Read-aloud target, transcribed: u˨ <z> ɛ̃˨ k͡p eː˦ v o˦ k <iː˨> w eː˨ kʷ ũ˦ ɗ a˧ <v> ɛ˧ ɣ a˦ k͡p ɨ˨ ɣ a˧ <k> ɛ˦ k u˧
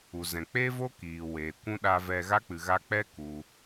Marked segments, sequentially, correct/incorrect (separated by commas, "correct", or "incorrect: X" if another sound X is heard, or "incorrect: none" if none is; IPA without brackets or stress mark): correct, correct, correct, incorrect: k͡p